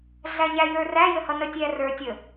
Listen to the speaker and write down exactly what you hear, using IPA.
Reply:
ɮ æ ɲ æ j ə˞ r æ j ə h ʌ n ə tʲ æ r ə˞ tʲ ə

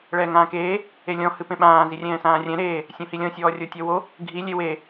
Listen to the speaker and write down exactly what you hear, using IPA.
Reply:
ɭ ɛː ŋ ãː k eː | e lʲ ɔ̃ h ɨ p ẽ ɓ ãː z i rʲ ɛ̃ː s ãː rʲ ɛ̃ ɾ eː | sʲ õ h i lʲ ɔ̃ sʲ ɔː rʲ o tʲ ɔ w o | ɡʱ i lʲ e w e

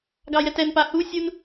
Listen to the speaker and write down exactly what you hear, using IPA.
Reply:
ɡ ɑ j ɛ t ɛ n p a h u sʲ u n

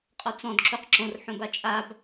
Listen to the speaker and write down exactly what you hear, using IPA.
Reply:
qʼ ɔ t͡s ɔ̃ d ǁ u q ǁ õ r ħ õ b a t͡ʃʼ a b

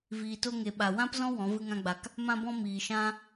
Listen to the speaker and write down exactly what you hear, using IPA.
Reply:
v iː˨ t o˧ ŋ e˨ ɓ a˨ w ã˦ p z ɔ̃˦ w ɔ̃˨˦ v ɨ˦ ŋ ã˦ ɡ͡b a˧ k | m ã˧ b ɔ̃˧ m iː˨ ʃ ã˦

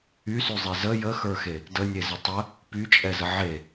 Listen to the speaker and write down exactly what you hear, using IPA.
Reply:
y s y zˤ e z ə j ə x ə˞ x e | d ə nʲ e z ə tˤ ə | p y t͡ʃʼ ɛ z ə ʕ e

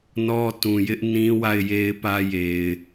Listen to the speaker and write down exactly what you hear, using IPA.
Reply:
n ɔ˦ t ũ˨ j ɪ˦ ʔ n ĩ˦ w a˦˨ ɪ̯ j e˦ ɪ̯ p ä˦ j e˨ ɪ̯

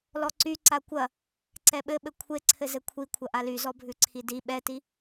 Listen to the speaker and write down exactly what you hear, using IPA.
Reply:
l ɔ ǀ y ǀ a kʷ ɐ | ǀ ɛ ɓ ɘ ɓ ɘ kʷʰ e ǀʰ ɘ z ɘ kʷʰ i kʷʰ ɐ ʔ a l y z ɔ bʱ ʉ ǀʰ i d i ɓ ɛ t i

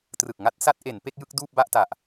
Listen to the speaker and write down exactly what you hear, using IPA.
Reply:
t r ɯ˨˩ k̚ ŋ a˥˩ t̚ s a˦˥ t̚ ʔ e˩˦ n p e˥˩ k̚ j ɯ˥˩ k̚ d uː˥˩ p̚ b a˥˩ ʔ t a˨˩ ʔ

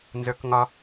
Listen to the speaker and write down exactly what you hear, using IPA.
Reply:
n z ə˞ k ŋ ɒ

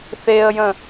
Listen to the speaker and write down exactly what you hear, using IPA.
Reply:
θ e ə̯ j ə̃

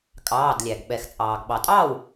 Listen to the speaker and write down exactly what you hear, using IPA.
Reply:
kʼ ɑː˩˧˩ d lʲ æ˩ ɡ ɓ ɛ˩ x t͡sʼ ɑː˩ ɡ ɓ ɑ˩ tʼ ɑː˥˩ w

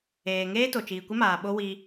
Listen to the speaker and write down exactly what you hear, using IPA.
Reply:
eː˨ ŋ eː˦ t o˨ t͡ʃ iː˨ kʷ ɪ˦ m aː˨ ɓ o˦ w i˦

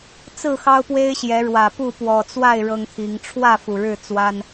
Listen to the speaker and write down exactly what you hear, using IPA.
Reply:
t͡s ɹ̩˥˨ x ɑ˦ ʊ̯ p w e˦ ɪ̯ ɕ j ɛ˨˦ ɻ w ä˨˩ p u˥˨ p w ɔ˨˩ t͡s w a˥˨ ɪ̯ ɻ ɤ˦ ŋ t̪ʰ i˨˦ ŋ ʈ͡ʂʰ w ä˥˨ f u˨˩ ɻ ɻ̩˥˨ t͡s w a˦ n

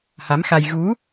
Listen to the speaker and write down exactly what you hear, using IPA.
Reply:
h a˨˦ m x a˧ j ɣ u˨˦

